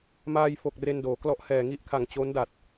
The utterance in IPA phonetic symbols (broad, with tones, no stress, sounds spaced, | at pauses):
m aː˧ j f o˨˩ k̚ r e˧ n d oː˩˦ k l ɔ˦˥ ʔ h ɛː˨˩ ŋ i˥˩ ʔ kʰ a˨˩ ŋ t͡ɕ o˦˥ n d a˨˩ t̚